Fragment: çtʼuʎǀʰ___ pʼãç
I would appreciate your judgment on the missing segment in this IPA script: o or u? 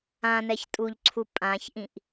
u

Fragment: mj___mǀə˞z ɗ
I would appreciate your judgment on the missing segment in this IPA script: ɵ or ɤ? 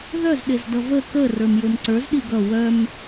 ɵ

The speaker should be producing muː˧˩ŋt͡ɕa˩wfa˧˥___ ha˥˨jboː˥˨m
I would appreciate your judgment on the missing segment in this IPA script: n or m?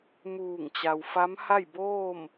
m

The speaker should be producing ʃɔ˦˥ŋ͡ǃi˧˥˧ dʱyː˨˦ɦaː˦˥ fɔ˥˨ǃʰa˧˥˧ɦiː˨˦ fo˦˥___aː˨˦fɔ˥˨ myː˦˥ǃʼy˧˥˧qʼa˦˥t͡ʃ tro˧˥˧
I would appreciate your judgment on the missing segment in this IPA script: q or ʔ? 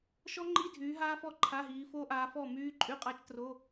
ʔ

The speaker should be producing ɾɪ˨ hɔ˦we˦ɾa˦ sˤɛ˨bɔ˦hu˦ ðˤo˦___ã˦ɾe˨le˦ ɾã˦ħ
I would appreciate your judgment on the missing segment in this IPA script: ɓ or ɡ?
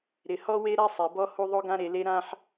ɡ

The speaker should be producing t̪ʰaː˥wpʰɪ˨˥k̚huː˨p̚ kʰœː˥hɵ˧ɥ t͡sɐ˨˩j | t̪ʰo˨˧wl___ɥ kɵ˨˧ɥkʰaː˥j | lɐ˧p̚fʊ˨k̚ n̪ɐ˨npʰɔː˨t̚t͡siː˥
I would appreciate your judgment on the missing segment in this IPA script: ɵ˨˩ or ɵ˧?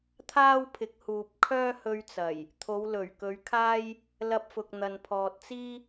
ɵ˨˩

